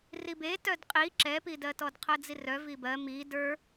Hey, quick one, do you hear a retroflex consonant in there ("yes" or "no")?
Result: no